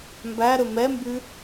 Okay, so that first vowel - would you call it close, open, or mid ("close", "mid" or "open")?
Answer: open